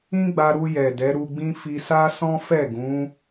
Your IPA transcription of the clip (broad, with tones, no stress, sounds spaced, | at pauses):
ĩ˦ ɡ͡b a˧ ɾ u˧ j ɛ˨ d ɛ˨˦ ɾ u˧ ɡ͡b ĩ˦ f i˧ s a˦ s ɔ̃˦ f ɛ˦˨ ɡ ũ˨˦